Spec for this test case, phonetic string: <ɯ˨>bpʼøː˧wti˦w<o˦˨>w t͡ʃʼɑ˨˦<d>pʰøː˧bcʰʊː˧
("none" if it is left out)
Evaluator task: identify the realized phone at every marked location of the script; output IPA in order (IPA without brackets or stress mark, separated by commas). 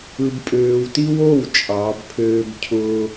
ɯ˧, o˦˨, b